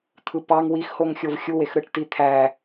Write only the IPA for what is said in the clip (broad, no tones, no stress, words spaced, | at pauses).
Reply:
t̪ʰɯpɑŋ wixhoŋ xʲovxʲuwex ɾɯʈtit̪ʰæ